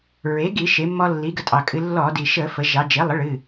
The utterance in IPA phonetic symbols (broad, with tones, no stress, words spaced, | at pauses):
ɹe˩˥ɡi˧˩˧ ʃe˩˧mːɔ˧ lːi˩˥ɡə˧tʼɑ˩kʼɨ˧ lːɔ˧˩˧ di˩ʃə˧˩˧ fə˩˧ʒɑ˩˧d͡ʒe˩˥ lˠə˩˥ɭɨ˩˧˩